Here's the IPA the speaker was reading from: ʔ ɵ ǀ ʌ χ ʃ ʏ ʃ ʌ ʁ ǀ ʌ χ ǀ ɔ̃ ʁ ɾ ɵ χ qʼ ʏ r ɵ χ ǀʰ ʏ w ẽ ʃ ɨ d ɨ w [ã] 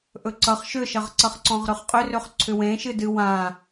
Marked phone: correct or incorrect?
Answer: correct